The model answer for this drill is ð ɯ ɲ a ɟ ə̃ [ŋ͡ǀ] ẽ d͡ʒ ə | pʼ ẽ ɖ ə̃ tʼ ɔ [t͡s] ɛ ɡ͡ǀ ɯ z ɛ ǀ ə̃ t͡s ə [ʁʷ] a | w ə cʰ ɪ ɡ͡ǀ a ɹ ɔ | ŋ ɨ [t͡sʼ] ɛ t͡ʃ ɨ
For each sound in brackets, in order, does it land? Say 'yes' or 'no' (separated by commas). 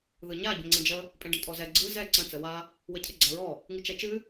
yes, no, no, no